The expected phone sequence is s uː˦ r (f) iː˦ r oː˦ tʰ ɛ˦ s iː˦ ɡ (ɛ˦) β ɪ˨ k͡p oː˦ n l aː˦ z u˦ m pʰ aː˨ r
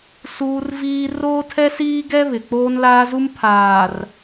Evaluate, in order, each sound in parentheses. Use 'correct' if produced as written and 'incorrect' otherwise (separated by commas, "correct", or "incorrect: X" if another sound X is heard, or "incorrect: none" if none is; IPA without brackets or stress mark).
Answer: incorrect: v, correct